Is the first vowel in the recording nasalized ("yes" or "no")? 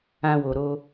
yes